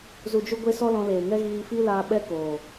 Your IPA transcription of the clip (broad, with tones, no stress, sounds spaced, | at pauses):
z u˨ d͡ʒ u˧ ɡʷ e˧ s ɔ˦ l ɔ̃˧ l eː˨ ŋ ɛ˦ ɣ iː˧ f i˦ l aː˧ ɓ ɛ˦ k oː˨